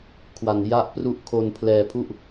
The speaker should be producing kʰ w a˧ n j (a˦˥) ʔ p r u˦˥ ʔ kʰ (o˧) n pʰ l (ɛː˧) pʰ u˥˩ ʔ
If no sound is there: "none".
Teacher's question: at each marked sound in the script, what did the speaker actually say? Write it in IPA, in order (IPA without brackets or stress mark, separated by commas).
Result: a˦˥, o˧, ɛː˧